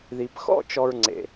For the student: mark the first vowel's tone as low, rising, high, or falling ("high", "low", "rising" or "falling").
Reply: low